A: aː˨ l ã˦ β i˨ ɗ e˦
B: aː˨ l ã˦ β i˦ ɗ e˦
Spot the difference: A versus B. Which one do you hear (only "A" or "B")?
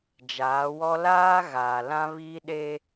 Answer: B